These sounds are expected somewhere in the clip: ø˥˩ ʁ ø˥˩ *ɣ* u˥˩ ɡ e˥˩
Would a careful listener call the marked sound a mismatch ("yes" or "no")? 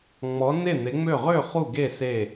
yes